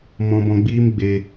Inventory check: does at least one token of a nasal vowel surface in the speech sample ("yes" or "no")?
yes